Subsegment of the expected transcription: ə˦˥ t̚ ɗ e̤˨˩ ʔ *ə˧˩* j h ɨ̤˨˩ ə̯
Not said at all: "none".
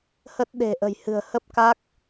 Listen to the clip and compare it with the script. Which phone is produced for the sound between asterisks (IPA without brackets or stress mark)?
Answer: ə̤˨˩